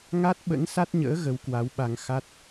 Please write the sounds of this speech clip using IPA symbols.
ŋ a˦˥ t̚ ɓ ə̰˧˥ n s a˦˥ t̚ ɲ ə̰ː˧˥ ɣ ə˨˦ w k w a˨˦ w ɓ a˧ ŋ x a˦˥ t̚

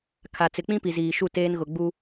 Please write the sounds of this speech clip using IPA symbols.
kʰ a˨ t͡s ɪ˨ k͡p ĩ˦ p i˨ z iː˨ ʃ u˦˨ t eː˦ n ɣ ʊ˨ ɡ͡b u˦

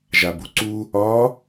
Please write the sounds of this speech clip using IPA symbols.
ʒ a b u ǀ u | ɒ

